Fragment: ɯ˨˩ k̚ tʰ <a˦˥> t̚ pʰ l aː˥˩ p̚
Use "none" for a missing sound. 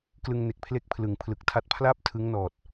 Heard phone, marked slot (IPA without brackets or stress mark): a˦˥